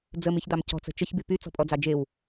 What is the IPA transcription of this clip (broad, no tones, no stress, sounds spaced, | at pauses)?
d͡z ə m i ç d̪ ɑ m c ɔ̤ t͡s ə̤ t͡ʃ ə ç b y p y t͡s ɔ̤ pʼ ɔ d͡z ɑ d͡ʒ e w